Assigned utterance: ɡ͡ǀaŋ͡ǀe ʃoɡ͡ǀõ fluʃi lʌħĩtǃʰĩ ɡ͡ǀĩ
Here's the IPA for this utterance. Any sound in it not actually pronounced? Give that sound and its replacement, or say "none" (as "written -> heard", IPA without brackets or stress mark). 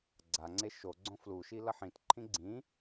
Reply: none